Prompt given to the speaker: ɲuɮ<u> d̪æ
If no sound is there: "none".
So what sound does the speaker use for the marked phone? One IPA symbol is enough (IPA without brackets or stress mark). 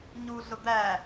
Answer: ʊ